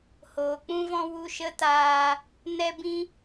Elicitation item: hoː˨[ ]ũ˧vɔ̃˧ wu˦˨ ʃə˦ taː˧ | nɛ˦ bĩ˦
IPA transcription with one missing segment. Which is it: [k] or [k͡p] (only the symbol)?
k͡p